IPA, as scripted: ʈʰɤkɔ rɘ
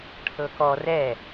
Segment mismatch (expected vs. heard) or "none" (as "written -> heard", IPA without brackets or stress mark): ɘ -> ɛ